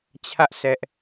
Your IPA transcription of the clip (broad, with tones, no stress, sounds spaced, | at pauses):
t͡ɕʰ ä˦ ʔ s ɛ˦ ʔ